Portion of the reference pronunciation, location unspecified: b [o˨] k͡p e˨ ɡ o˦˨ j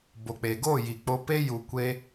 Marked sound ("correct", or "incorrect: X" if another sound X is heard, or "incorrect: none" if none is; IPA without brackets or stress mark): correct